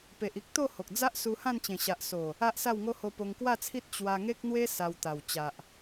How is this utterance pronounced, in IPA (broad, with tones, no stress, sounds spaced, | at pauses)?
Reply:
p e˨ ʔ i˦ k̚ t̪ o˥˧ h o˨ k̚ d͡z a˦ ʔ s u˧ h ã˥˧ n t͡ɕ ẽ˨˩ ɕ a˨ ʔ s o˨˩ | a˦ ʔ s a˥˧ w ŋ o˦ h o˧ p o˧ ŋ k w a˥˧ t͡sʰ i˦ t̚ t͡ɕ w a˧ ŋ e˦ k̚ n̪ w e˦ s a˧ w t̪ a˨˩ w t͡ɕ a˨ ʔ